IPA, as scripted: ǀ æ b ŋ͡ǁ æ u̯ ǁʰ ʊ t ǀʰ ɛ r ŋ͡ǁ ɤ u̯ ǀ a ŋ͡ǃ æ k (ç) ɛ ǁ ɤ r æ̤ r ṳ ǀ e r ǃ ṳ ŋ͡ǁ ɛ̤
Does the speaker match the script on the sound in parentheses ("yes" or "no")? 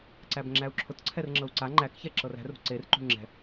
yes